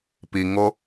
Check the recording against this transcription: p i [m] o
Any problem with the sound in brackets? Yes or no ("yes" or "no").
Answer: yes